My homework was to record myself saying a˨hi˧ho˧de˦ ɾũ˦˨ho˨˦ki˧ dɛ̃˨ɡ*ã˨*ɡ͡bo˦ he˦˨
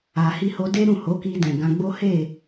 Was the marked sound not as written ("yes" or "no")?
yes